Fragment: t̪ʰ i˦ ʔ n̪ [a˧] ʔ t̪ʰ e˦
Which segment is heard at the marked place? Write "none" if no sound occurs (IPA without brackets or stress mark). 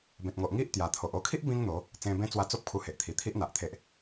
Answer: a˨